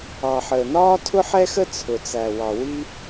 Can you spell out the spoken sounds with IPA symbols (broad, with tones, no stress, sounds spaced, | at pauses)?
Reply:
ɑ˩ ħ əː˩ n ɒː˥ tʰ ʊ˥ ħ ɛ˥ x ə˥ t͡sʰ ʊ˩ t͡s æ˩ w ɑ˩ w i˥